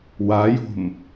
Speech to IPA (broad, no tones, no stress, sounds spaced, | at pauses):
w a j o̤ m